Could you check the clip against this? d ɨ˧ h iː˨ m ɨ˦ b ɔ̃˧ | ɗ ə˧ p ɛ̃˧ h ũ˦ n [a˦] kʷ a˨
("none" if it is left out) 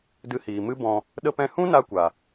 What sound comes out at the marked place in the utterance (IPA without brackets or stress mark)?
a˧